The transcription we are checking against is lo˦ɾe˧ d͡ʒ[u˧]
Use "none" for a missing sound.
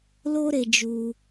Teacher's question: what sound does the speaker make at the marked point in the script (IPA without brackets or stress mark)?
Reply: u˧